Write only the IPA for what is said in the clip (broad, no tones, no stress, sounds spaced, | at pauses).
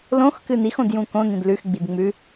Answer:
l õ x k ɨ n i x õ d j ũ k õ n ĩ d l ʉ x ɡ͡b i d ŋ͡m ʉ